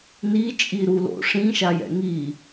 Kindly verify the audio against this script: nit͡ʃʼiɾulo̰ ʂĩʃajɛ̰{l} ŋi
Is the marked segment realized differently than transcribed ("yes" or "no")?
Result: yes